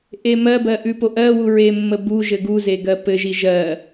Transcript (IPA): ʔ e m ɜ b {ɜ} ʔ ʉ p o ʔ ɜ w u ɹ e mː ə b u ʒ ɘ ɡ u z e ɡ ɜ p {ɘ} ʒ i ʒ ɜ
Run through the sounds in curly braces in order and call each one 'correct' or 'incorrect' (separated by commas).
correct, correct